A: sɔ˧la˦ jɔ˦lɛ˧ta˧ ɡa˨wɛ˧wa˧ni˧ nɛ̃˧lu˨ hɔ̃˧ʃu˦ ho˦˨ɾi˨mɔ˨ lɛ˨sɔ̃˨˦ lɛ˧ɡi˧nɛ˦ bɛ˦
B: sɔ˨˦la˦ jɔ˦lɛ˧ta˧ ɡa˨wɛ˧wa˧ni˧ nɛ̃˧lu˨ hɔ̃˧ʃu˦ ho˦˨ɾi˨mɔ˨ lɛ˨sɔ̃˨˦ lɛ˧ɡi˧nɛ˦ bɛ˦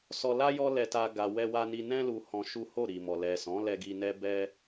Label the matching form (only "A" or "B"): A